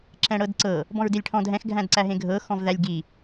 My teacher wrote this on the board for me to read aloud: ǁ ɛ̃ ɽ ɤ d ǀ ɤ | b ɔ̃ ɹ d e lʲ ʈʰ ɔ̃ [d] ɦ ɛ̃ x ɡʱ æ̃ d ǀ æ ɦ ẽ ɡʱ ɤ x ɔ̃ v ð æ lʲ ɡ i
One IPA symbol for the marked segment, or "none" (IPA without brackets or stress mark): d